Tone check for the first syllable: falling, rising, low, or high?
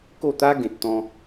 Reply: falling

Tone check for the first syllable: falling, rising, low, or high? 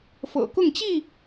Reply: low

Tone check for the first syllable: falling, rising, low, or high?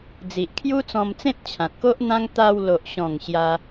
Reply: low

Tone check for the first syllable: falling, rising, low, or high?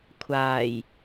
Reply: low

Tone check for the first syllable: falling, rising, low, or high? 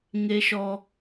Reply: high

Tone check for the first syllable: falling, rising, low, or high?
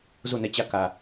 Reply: falling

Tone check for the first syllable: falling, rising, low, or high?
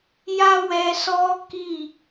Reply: high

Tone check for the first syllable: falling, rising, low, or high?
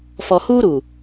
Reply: low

